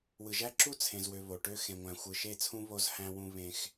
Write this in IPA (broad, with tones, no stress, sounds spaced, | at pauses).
w ɯ˨ ʒ æ˦ ǁ u˦ t͡sʰ ẽ˨ z w ø˨ β o˨ ʈ ø˦ x ẽ˨ ŋʷ æ̃˨ xʷ ɯ˨ ʃ e˦˨ t͡sʰ ũ˦ β o˦ z h æ̃˦ w ũ˦ β ẽ˦ x